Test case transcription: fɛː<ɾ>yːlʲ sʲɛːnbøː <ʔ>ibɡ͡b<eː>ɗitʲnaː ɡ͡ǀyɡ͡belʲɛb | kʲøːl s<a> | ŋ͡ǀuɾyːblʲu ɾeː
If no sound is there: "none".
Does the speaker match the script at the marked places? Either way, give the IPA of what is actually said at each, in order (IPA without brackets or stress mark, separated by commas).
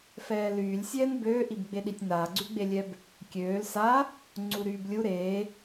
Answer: l, ʔ, e, a